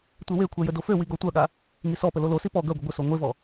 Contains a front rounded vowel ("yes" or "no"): yes